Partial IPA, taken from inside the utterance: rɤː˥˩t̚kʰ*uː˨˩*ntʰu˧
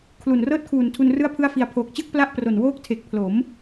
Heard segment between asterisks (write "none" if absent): uː˨˩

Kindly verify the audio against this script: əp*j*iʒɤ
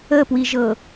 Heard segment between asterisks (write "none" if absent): w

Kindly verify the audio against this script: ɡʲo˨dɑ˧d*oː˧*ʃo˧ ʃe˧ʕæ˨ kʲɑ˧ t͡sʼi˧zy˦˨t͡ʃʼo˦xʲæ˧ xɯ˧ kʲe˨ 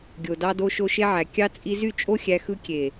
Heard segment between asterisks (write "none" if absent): o˧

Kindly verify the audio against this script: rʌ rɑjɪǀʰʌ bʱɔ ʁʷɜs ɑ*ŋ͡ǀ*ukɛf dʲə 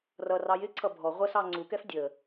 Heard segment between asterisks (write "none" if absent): ŋ͡ǀ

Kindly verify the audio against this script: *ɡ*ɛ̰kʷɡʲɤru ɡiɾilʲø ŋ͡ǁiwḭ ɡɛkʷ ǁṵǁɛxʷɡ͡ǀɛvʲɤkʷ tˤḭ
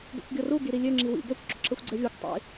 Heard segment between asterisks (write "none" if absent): ɡ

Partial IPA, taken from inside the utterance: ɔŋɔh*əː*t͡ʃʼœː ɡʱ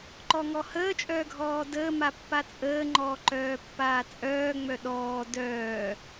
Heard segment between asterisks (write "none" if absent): əː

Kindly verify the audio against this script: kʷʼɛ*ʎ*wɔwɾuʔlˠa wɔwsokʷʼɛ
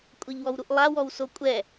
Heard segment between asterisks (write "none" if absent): ʎ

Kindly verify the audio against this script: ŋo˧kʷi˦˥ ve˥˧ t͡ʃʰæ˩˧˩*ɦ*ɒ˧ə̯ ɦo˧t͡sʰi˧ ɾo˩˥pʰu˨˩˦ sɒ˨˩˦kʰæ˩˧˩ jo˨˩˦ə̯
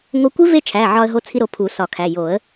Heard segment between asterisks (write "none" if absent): ʕ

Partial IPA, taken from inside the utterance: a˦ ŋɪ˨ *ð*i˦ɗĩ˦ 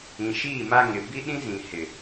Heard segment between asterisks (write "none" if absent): b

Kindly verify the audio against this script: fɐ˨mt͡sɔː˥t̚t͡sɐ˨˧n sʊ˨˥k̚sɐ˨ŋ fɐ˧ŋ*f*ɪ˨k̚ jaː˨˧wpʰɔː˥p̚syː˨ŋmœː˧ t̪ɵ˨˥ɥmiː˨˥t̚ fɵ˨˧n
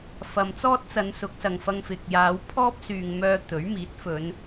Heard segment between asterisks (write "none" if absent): f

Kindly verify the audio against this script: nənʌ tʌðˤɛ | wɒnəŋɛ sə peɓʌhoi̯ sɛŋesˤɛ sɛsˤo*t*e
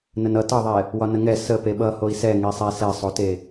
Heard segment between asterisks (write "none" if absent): t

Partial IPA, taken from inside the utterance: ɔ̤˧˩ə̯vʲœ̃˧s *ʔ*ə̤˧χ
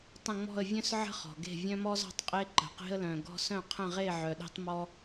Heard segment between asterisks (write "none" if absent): ʕ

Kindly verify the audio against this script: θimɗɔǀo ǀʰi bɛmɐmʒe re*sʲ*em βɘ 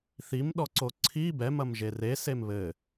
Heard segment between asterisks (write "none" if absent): s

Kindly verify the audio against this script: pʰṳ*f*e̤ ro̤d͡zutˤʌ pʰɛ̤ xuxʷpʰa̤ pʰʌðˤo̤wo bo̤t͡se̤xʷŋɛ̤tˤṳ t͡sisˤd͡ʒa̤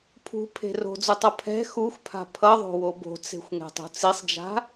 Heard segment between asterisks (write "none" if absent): pʰ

